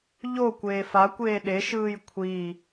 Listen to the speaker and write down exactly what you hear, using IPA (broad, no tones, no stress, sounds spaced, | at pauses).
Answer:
ʎ o kʷ eː f a kʷ eː ɗ e ʃ ɯː j kʷʰ i